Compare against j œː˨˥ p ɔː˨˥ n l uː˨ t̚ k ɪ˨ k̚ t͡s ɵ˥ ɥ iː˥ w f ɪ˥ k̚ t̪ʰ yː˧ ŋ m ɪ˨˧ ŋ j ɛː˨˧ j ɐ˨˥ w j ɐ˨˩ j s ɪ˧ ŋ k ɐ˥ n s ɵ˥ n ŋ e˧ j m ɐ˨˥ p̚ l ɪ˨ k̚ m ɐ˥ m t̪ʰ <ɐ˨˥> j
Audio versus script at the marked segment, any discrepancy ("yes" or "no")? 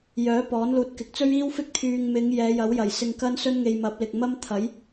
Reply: no